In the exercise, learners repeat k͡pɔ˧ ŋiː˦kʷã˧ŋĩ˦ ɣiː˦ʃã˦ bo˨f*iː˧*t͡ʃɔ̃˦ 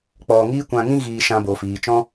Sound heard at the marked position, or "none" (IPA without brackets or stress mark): iː˨